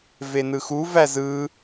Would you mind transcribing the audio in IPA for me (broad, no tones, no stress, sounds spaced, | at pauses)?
v e n ɯ x u v æ z ɯː